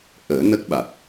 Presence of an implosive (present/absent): present